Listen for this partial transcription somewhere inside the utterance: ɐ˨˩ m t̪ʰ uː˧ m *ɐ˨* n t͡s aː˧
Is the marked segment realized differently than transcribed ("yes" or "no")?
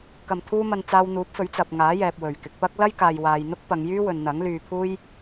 no